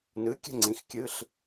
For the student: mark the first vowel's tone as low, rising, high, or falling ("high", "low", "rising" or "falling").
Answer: rising